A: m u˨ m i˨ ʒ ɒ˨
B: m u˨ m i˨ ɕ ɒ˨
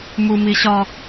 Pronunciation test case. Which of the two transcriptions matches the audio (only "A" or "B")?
B